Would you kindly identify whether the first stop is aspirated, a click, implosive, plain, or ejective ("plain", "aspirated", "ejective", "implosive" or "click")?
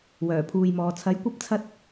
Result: aspirated